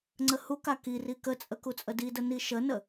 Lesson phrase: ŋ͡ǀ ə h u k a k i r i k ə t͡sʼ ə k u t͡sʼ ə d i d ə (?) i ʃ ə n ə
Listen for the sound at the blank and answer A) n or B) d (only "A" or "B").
A